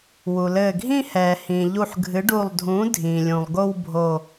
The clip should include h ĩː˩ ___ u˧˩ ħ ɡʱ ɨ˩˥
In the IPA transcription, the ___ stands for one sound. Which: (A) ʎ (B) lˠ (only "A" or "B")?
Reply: A